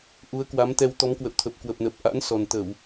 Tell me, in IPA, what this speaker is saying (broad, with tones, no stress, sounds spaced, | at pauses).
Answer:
ʔ u˨˦ ə̯ k w a˨˦ m t̪ ɛ˧ w t̪ ɔ˨˦ m k w ə̰˧˨ w t̪ʰ ə˨˩ p̚ k w ə˨˩ p̚ n ə˨˩ p̚ ʔ a̰˧˥ n s ɔ˨˩ n t̪ ə˧˩˨ w